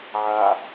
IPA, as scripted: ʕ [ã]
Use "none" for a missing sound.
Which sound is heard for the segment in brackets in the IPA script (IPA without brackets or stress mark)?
a